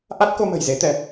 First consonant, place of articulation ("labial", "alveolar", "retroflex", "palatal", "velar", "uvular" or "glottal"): glottal